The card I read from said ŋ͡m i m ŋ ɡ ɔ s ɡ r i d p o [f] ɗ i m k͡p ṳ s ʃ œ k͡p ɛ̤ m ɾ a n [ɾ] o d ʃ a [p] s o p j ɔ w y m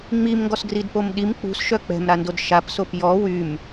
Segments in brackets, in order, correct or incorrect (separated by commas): incorrect, incorrect, correct